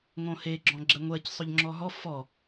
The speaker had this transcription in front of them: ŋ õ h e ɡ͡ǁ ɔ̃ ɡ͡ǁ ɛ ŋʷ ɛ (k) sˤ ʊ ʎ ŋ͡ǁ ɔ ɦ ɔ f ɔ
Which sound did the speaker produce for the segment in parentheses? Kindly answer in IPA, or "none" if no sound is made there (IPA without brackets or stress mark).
c